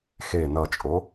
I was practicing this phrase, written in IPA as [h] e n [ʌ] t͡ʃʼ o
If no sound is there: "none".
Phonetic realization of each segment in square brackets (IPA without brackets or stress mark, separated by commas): x, ʌ